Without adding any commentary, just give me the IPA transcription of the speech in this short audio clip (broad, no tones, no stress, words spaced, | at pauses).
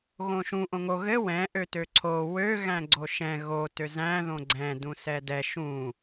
ɣõʃũ ʔõŋo ɣɘ wɛ̃ ʔøtøǀʰo wø ɣæ̃ɡ͡ǀoʃɛ̃ ɣo tøzæ̃ ðõɡ͡ǀɛ̃ dũsɛdɛ ʃũ